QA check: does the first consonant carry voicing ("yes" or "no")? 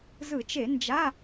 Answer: yes